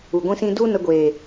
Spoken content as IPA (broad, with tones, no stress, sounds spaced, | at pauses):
u˨ ɡʷ ĩ˦ s ĩ˦ d u˦ n ə˧ ɡʷ eː˨